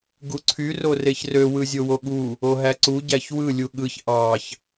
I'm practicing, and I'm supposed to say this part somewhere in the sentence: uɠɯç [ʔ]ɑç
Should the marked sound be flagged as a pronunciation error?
no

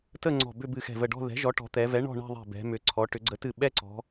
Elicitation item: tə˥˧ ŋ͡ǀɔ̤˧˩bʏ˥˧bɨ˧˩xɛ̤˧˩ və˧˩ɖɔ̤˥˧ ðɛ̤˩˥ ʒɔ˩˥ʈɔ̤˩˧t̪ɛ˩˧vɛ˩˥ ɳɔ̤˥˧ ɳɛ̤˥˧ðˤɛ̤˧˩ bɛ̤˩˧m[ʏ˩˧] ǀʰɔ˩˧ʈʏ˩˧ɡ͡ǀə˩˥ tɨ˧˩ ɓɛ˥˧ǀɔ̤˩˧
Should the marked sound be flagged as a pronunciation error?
no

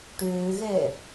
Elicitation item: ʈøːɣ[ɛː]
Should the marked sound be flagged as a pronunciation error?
no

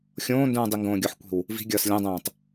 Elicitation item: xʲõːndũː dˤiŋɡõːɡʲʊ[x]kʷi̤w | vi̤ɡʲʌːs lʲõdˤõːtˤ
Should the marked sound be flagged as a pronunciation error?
yes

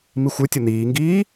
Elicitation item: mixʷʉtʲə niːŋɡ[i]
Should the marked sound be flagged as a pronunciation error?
yes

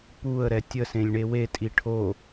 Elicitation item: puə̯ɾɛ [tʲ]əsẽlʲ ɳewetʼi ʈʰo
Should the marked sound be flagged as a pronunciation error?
no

